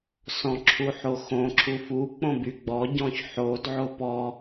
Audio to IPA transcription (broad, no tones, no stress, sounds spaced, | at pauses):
s ɔ̃ ǁʰ u ħ o x õ ǁʰ u f u k͡p õ b y ɡ͡b ɔ ɟ ɔ̃ ç ħ o d ʕ o p ɔ